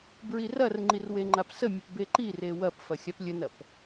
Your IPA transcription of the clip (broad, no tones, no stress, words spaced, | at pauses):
bɹirɐrŋ͡ǃir weŋ͡ǃapsəmʲəp beǃire wɐpfɐ xʲaplʲənɐp